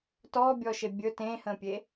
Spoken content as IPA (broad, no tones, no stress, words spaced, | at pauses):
tɔːbʲɔːʃe bʲɵ tẽːhə̃ːpʲe